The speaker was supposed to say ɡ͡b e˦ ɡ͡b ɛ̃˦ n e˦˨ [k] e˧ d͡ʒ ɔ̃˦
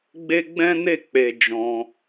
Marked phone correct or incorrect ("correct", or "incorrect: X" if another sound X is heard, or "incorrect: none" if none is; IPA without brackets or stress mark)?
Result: incorrect: k͡p